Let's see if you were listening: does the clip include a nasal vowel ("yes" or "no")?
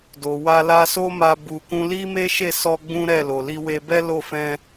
yes